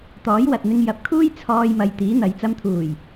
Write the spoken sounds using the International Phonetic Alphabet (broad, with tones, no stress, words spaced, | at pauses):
t̪ɔː˨˥jwɐ˨t̚n̪ɪ˧ŋ jɐ˨p̚kʰuː˥j t͡sʰɔː˧jmɐ˨j t̪iː˨˥n̪ɐ˨˧j t͡sɐ˧mt̪ʰuː˨˩j